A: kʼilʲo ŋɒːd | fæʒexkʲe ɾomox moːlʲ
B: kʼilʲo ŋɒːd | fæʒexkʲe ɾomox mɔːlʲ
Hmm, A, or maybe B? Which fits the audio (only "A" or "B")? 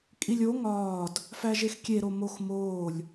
A